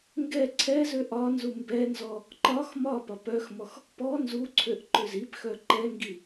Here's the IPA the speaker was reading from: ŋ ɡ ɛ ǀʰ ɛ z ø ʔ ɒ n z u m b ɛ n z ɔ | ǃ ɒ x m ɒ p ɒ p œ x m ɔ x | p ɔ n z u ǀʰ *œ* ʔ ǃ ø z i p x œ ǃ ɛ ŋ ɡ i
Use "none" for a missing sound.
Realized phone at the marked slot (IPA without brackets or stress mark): ø